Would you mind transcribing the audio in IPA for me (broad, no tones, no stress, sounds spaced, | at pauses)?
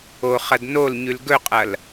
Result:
o χ ɐ d n o l ɲ ʉ l ɡ ɵ qʼ ɐ l